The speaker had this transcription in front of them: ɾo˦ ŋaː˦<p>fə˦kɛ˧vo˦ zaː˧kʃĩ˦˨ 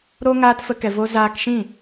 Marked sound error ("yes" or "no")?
yes